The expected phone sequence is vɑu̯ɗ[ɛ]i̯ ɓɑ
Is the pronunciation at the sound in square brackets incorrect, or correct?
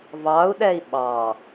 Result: correct